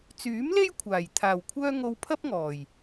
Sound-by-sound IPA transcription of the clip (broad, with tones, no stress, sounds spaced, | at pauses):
t͡s yː˨˥ m l e˥ j kʷʰ aː˨˩ j t̪ʰ aː˨˩ w kʷʰ œː˥ ŋ o˧ w pʰ ɐ˥ p̚ ŋ ɔː˨˩ j